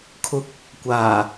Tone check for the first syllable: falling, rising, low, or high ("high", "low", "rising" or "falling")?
rising